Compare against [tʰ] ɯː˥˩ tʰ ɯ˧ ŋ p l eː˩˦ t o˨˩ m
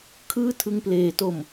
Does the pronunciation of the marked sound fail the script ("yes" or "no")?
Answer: yes